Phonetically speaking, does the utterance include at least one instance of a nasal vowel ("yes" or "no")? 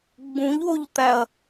yes